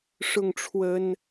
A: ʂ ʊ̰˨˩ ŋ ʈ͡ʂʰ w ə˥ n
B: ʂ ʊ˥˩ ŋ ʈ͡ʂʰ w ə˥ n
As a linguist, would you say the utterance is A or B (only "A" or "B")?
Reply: B